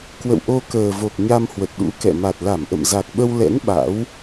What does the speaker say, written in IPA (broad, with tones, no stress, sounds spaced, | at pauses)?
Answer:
k w ə̰˧˨ w ʔ o˧ k əː˨˩ v o˨˩ k̚ ɲ a˧ m h w ə˨˩ t̚ ɗ ṵ˧˥ k ɛ̰˧˨ m a˨˩ t̚ l a˧˩ m ʔ ə̰˧˨ m z a˨˩ k̚ ɓ ə˧ w l ɛ̰˧˥ n ɓ a̰˧˥ w